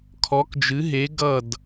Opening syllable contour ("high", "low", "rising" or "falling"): rising